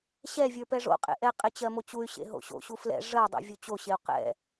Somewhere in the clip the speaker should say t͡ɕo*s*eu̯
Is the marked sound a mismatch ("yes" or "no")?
yes